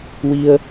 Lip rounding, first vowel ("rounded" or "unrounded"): unrounded